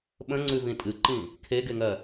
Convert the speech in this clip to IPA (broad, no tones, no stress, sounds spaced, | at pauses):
ɓ ə̃ ŋ͡ǀ ʉ v ĩ tʼ ɨ ǃ ĩ | kʰ e ɡ e ŋ ɜ